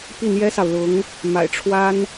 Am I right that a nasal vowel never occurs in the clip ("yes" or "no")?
yes